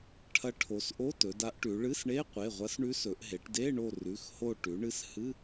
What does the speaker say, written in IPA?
ʈʰ ɐ˧˥ ʈʰ o˩˧ s ʔ o˧˥˧ t ɵ˩˧ d a˧˥ ʔ ʈ ʉ˩˧ ɭ ɨ˧˥˧ s ɳ e˧˥˧ qʷ e˩˧˩ ʁʷ ɐ˧˥ s ɳ ʉ˧˥ s ɵ˩˧ ʔ ɦ e˩˧ ʈ d e˧˥˧ ɳ o˦˨ r ʉ˩˧˩ x h o˦˨ ʈ ʉ˩˧ ɳ ɨ˧˥ s h ɨ˧˥˧

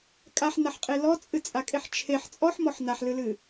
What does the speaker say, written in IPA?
kʼ a ħ n a ħ qʼ e l ɔ t͡sʼ ɨ t͡sʼ a kʼ e ħ t͡ʃʰ e ħ t͡sʼ ɔ ħ m ɔ ħ n a ħ l ɨ l ɨ

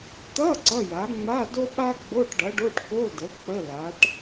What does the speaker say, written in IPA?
t̪ ʌ˧˥˧ ǀ ʌ˧˥˧ j a˩˥ ŋ͡m a˧˥˧ d o˥ ɓ a˥ ɡ͡b o˧˥˧ ʈ ɖ ʌ˩˥ ɖ o˧˥˧ ʈ k o˧˥˧ d ə˩˥ k͡p ə˧˥˧ l a˩˥ ʈ

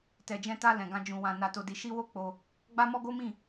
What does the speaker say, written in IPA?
t ɛ˨ d͡ʒ ɛ̃˧ t a˧ l ɛ̃˨ ɡ ã˧ d͡ʒ ũ˨ w ã˨ n a˨ t o˨ d i˨ ʃ i˧ w o˦ k͡p o˧ | ɡ͡b a˦ m ɔ˦ ɡ o˦ m ĩ˦˨

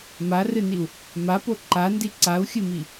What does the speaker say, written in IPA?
m a r ɨ n i u̯ | m a p o ǃ a n d i ǀ a u̯ xʲ ɨ m i

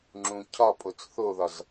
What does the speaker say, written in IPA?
ŋ͡ǁ ũ cʰ ɒ pʼ o t͡s θ o ð ɒ z

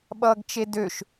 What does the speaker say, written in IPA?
ɓ ʌː ɡ t͡ʃ e d ø ʃ

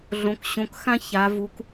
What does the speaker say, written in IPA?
ɮ õ˩˧ k ɕ õ˩˧ k x ã˦ ç a˩˧ v u˩˧ k

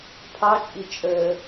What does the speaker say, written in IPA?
pʰ ɑ t͡ʃʼ i t͡ʃʼ əː

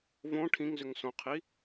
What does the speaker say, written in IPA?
v õ ʈʰ ĩ ŋ z ʏ ŋ s õ qʰ i

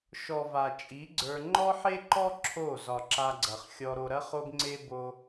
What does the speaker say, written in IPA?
ʃ ɔ˨ v a˨ t͡ʃʼ i˨˦ ɡ͡ǀ ə˞˧ ŋ͡ǃ ɔ˦ ħ e˦ ǃ ɔ˦ ǁʰ o˦˨ z ɒ˨ ǁ a˧ ɡ͡ǀ ɐ˨ χ xʲ ɔ˧ ɾ o˧ ɾ ɐ˦ χ o˦ ɡ ŋ͡ǀ e˦ b o˦

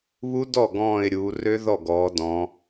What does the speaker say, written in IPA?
β u˦˥ d ɔ˥˩ ɡ ɔ̃ː˧˩ ɪ̯ ɾʲ uː˩˧ r ø˦˥ ð ɔ˥˩ ɡ ɔː˩˧ d ɔ̃˩˧

